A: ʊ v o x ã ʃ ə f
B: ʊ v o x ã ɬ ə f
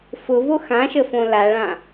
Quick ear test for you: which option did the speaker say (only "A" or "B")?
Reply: A